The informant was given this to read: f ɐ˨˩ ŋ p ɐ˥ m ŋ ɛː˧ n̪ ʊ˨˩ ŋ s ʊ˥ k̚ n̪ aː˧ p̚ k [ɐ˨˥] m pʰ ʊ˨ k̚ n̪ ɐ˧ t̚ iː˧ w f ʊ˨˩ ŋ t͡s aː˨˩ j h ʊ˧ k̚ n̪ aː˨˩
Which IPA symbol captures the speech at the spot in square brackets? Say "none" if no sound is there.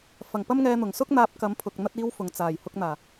ɐ˨˥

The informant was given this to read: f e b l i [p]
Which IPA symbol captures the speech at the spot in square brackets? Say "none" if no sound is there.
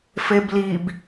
b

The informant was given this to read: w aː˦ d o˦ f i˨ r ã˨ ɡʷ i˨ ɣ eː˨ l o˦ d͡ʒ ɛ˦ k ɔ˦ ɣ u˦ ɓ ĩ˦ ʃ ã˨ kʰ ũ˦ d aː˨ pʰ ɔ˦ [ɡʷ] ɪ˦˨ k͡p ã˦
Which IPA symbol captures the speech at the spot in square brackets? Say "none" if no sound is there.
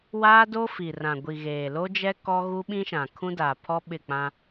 ɓ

